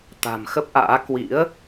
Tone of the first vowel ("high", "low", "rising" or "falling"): low